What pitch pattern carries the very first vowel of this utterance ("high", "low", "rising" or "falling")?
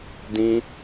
high